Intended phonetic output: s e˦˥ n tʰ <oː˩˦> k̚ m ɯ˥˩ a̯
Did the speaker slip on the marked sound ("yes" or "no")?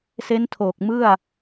yes